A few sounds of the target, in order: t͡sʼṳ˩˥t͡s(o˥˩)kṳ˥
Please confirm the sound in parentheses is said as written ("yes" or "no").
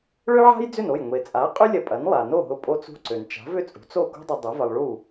yes